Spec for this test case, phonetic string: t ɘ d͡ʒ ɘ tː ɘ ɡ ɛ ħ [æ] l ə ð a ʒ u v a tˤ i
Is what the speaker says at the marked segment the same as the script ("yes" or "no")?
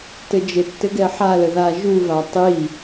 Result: no